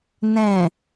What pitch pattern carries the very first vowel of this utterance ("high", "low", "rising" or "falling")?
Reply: low